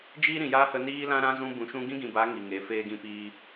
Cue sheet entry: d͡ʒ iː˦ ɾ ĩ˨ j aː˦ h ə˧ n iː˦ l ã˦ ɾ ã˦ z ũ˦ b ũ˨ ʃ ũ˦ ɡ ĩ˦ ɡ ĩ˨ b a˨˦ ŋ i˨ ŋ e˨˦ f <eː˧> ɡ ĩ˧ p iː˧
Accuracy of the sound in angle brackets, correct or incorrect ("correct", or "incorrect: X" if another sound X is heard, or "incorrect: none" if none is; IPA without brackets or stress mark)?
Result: correct